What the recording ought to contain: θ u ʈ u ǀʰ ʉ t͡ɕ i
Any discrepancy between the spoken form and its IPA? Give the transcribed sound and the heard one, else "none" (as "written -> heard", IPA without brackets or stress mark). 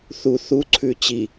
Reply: ʈ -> θ